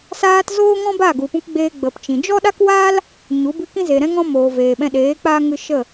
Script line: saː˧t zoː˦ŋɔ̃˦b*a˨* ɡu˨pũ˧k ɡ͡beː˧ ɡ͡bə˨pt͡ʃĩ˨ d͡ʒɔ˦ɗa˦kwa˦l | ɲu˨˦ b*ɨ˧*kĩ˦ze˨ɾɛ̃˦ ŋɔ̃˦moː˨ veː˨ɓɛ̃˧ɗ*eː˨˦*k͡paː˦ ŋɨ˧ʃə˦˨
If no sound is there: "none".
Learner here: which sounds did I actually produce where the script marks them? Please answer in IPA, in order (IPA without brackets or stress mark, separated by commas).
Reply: a˦˨, ɨ˧, eː˨˦